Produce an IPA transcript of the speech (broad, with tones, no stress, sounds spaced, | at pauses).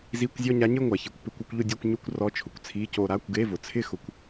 z i˧˥˧ kʷ zʲ ɔ˥˧ ɲ a˧˥ ɲ ɪ˥˧ ŋʷ a˩˧ ç i˩˧ kʷ p ɪ˧˥˧ kʷ ɪ˥˧ kʷ ʎ ʊ˥˧ dʲ ɔ˥˧ kʷ ɲ u˥˧ kʷ r ɔ˧˥˧ t͡ʃʰ ʊ˩˧ kʷ t͡sʰ i˧˥˧ c o˥˧ ɾ a˧˥˧ kʷ ɡ e˧˥˧ v ʊ˩˧ t͡sʰ ɪ˥˧ x ʊ˧˥ kʷ